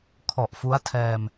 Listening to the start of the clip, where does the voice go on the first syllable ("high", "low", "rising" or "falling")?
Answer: low